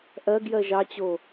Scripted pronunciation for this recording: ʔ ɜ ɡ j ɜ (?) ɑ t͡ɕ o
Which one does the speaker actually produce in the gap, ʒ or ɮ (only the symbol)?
ʒ